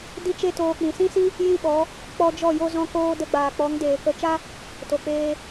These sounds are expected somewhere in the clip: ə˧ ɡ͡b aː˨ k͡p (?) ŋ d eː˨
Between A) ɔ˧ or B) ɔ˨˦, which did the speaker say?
B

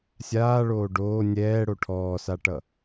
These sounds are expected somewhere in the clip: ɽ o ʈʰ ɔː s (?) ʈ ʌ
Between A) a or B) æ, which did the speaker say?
A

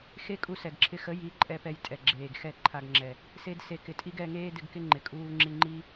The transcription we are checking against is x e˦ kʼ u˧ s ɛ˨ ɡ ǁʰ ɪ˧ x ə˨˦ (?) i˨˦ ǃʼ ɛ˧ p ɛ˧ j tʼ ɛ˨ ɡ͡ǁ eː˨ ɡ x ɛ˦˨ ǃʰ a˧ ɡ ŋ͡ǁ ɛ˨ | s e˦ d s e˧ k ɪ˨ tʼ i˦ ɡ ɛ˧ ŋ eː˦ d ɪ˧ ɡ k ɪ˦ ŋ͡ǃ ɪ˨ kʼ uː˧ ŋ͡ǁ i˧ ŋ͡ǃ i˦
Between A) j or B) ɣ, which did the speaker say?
A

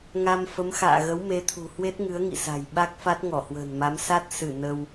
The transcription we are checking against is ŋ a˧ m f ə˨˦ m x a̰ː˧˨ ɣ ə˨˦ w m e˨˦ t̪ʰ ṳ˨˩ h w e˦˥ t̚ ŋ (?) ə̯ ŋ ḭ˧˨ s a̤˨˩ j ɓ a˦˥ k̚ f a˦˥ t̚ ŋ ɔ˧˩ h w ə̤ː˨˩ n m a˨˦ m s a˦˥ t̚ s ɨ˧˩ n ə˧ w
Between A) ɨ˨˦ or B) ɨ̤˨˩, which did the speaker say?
A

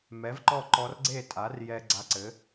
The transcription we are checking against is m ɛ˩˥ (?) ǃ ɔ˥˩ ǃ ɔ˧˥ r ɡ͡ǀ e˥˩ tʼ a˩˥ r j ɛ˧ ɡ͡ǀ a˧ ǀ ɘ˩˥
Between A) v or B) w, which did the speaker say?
A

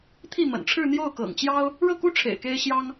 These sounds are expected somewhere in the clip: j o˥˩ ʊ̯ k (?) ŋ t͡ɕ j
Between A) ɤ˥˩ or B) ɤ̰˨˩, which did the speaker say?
B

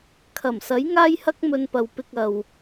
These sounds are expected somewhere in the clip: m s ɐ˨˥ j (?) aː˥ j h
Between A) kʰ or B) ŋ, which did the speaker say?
B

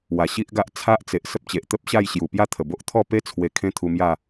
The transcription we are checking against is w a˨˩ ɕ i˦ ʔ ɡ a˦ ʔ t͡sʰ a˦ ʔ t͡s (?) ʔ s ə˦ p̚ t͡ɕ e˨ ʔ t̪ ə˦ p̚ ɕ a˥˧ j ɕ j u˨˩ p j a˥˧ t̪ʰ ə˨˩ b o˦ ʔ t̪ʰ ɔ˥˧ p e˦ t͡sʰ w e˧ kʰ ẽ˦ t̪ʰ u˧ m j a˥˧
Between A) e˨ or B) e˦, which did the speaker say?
A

